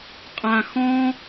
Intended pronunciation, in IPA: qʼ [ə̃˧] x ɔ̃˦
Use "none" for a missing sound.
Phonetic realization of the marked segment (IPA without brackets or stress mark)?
ã˧